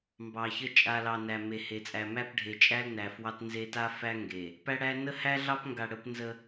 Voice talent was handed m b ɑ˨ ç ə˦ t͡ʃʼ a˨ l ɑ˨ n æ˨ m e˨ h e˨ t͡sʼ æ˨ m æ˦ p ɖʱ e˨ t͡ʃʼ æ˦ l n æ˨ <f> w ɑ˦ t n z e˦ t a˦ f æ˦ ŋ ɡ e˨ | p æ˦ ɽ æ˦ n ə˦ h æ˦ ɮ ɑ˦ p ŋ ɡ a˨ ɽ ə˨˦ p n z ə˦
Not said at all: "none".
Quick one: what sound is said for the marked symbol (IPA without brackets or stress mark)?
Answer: f